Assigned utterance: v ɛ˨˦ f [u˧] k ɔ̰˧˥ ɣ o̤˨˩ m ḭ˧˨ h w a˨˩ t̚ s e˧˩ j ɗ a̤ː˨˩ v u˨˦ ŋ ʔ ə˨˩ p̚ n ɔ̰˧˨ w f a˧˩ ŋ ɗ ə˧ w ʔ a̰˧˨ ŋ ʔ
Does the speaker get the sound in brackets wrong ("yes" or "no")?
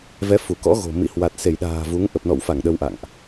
yes